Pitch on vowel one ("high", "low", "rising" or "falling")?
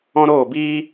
high